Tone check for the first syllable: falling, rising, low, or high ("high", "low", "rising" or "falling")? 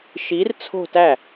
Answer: rising